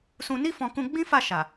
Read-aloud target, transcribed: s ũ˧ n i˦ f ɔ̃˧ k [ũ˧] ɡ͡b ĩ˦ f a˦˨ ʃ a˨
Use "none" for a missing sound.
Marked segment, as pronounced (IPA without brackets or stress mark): ũ˧